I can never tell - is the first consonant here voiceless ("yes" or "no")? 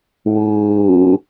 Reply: no